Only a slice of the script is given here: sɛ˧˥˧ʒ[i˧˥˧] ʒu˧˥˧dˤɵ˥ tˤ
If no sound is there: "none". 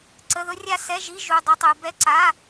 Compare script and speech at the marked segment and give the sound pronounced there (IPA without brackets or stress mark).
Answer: i˧˥˧